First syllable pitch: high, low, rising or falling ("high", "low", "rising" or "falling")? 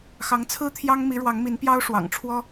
rising